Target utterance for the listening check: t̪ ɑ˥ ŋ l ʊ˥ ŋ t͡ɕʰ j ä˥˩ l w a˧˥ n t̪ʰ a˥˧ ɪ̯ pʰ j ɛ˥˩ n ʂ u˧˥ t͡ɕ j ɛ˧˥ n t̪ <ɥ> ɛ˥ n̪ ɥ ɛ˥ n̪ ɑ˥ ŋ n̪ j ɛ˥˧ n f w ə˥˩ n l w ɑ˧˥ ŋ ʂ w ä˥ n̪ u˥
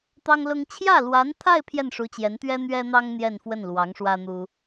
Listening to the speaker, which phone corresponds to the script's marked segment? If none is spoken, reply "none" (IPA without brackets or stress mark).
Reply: ɥ